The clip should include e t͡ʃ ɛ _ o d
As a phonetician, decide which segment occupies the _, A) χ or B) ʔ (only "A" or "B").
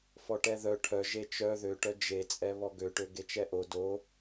B